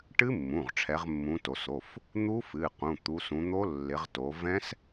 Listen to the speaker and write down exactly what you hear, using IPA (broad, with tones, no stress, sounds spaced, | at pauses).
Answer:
ʈ ɨ˦˥ mː ũ˩˧˩ ʁ ʈ͡ʂʰ ɛ˨˦ ʁ mː ũ˨˦ t o˩˧˩ s o˩˧˩ f | n̪ u˦˥ f ɨ˩˧˩ q ũ˩˧˩ t̪ u˨˦ s ũ˨˦ n̪ o˦˥ lː ɪ˨˦ ʁ t o˨˦ v ɛ̃˦˥ s